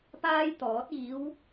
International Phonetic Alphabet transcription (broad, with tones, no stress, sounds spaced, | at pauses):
p aː˥ j t̪ ɔː˨˥ t̚ iː˨˧ w